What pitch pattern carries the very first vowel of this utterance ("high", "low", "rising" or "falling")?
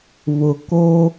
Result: low